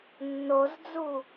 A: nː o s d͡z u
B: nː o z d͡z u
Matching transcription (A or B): B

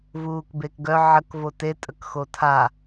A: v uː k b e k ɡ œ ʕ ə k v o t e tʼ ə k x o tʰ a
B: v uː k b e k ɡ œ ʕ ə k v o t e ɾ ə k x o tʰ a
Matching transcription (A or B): A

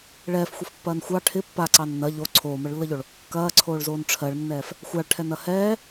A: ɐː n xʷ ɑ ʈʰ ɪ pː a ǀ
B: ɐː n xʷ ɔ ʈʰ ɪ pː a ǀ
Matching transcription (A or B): A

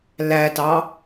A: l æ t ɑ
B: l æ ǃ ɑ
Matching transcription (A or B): A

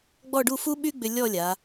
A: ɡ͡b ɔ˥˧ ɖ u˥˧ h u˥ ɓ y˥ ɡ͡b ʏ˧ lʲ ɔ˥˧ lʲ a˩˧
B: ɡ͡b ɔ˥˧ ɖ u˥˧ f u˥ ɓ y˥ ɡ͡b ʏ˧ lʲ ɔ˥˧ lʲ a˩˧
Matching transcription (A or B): B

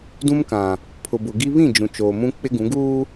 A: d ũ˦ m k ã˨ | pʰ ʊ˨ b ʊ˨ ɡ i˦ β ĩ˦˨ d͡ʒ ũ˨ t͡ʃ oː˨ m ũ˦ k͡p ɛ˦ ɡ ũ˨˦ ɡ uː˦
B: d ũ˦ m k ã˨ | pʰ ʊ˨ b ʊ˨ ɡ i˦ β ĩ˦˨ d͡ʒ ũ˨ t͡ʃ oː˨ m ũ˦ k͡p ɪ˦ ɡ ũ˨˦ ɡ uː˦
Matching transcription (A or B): B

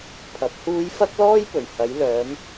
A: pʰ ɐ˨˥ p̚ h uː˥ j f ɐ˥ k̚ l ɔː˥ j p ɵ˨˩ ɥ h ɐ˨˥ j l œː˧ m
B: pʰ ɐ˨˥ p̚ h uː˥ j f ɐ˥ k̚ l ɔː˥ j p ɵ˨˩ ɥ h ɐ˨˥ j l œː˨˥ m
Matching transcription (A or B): B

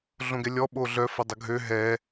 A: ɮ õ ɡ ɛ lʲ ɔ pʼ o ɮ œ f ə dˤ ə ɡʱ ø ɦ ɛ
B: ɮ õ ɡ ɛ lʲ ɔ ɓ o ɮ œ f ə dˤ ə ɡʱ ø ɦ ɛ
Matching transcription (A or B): B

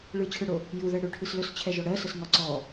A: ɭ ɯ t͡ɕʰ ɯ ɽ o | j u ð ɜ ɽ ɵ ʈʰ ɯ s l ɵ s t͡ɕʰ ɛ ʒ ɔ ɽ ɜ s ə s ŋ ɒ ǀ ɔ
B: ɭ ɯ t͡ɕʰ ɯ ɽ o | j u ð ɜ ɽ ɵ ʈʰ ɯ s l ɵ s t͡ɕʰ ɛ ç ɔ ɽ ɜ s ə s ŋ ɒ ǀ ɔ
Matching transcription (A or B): A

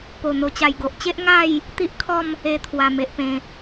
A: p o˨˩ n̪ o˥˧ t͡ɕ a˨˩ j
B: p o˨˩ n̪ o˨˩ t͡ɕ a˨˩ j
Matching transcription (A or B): B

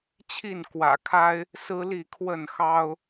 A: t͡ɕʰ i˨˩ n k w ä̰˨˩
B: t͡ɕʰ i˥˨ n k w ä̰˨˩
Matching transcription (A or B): B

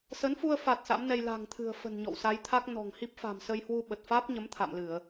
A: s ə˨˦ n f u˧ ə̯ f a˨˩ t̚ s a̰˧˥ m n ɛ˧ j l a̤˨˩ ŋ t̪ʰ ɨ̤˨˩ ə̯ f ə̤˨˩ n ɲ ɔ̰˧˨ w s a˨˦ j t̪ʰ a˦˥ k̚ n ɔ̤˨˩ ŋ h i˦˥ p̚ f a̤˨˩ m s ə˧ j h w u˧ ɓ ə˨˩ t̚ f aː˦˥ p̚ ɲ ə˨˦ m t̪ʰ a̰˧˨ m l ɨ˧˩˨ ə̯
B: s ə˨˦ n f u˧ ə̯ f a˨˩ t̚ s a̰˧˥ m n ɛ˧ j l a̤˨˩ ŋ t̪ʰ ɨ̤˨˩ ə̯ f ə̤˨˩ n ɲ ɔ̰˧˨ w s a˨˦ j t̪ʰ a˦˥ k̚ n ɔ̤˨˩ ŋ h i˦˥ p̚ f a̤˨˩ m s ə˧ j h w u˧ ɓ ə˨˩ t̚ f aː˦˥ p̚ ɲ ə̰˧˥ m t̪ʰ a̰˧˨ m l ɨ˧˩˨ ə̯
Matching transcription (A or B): A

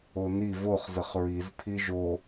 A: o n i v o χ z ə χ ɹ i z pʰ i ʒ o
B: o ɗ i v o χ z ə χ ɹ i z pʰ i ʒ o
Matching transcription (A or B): A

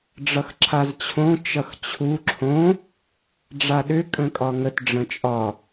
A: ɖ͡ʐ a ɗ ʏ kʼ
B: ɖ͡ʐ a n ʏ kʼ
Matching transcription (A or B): A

